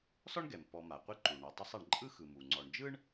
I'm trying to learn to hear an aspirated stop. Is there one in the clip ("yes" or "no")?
no